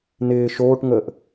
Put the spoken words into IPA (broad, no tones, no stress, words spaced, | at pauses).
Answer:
nɪː ʃoːʈŋəːʔ